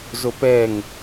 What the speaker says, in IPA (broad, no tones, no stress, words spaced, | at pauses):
zopɛŋ